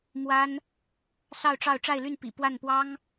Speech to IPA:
m w a˥ n | s ɑ˥˧ ʊ̯ ʈ͡ʂ ɑ˥˧ ʊ̯ ʈ͡ʂ a˥˧ ɪ̯ l y˥˩ n p ḭ˨˩ p w a˥˩ n p w ɑ˥ ŋ

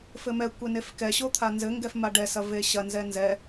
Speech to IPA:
f ɘ m ɛ kʷ e n e f k ɛ ɕ o t̪ʰ a n z ɘ ŋ ɡ ɛ f m a ɖ ɛ s ɐ v e ɕ ɐ n z ɛ n z ɛ

